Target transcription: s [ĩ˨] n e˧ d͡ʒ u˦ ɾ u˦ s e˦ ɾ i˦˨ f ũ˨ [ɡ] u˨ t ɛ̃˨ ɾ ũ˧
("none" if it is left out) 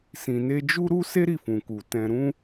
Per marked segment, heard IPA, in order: ĩ˨, k

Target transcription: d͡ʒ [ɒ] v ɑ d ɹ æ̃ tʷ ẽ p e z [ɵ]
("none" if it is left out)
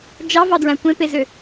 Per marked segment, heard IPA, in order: ɑ, ø

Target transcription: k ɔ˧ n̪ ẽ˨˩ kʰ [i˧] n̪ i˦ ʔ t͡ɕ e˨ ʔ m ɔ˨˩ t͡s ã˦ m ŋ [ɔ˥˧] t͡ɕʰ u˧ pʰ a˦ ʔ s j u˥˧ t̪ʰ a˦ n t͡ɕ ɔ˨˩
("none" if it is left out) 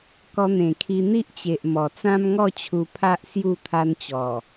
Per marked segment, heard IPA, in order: i˧, ɔ˥˧

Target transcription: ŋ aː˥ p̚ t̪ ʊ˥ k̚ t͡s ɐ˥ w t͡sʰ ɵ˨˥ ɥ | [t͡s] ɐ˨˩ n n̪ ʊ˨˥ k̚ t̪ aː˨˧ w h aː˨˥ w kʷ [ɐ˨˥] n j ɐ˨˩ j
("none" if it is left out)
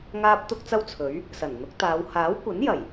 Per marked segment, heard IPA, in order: s, ɐ˨˥

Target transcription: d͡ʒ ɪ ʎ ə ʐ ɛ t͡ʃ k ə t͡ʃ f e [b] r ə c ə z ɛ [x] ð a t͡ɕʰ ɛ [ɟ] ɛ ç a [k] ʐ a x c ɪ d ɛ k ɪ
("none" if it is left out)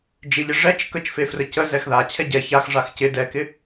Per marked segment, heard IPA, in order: f, x, ɟ, x

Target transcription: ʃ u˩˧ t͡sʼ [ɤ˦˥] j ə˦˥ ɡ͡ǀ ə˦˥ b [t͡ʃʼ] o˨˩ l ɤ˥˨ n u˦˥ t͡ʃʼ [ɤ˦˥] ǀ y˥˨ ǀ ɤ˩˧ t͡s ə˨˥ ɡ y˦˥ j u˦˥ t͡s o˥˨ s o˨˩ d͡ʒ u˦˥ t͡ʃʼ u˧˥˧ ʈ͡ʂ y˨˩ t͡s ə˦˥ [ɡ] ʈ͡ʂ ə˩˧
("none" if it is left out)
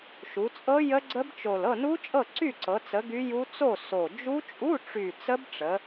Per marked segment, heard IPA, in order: ɤ˦˥, t͡ʃ, ɤ˥˨, b

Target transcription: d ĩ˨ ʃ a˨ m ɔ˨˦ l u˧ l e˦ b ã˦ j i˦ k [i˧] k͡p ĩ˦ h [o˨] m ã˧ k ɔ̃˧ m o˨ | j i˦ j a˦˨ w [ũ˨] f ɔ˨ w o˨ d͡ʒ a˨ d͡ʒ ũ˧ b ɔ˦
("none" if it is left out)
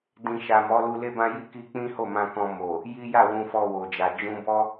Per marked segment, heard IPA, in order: i˧, o˦˨, ũ˨

